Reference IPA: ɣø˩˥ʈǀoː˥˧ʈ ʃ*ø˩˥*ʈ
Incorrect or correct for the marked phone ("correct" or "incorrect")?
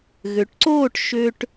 incorrect